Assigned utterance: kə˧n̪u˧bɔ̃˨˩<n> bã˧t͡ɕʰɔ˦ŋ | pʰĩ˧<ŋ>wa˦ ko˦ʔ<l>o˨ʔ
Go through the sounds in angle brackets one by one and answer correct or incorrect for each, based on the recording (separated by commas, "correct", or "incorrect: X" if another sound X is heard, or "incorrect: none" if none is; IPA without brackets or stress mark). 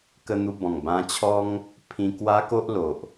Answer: incorrect: ŋ, incorrect: k, correct